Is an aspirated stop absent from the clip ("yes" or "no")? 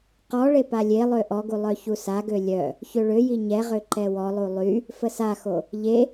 yes